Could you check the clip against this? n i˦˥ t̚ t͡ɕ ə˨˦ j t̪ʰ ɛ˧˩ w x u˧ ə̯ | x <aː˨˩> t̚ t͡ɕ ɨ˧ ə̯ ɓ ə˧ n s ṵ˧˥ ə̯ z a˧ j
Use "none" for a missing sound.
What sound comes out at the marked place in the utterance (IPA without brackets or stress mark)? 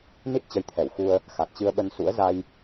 a˨˩